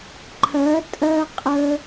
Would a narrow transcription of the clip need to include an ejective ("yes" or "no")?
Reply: yes